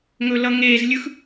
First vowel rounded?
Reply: yes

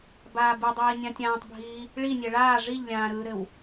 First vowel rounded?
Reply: no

